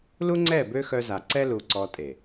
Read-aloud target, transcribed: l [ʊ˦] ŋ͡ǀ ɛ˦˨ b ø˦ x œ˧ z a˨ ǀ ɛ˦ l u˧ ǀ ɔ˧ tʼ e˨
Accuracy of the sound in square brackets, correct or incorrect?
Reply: incorrect